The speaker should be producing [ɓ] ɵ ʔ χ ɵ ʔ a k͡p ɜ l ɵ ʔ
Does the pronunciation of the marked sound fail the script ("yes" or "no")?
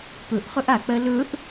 yes